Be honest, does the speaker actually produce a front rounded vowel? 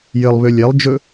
yes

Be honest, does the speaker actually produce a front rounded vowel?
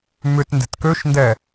yes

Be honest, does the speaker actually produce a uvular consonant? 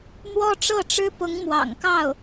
no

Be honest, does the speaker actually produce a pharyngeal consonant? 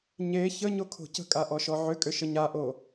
yes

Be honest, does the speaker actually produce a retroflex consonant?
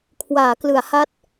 no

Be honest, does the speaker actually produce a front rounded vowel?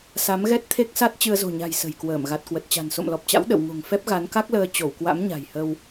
no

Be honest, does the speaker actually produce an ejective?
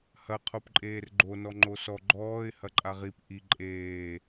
yes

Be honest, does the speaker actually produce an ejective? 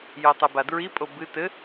yes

